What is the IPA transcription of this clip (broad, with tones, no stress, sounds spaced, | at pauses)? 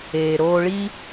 eː˩ ɾ oː˧ ɭ i˥